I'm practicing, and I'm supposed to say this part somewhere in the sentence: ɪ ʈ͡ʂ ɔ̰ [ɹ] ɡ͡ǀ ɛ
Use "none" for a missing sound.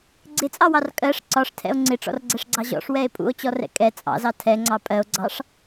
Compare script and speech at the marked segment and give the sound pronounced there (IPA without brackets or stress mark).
r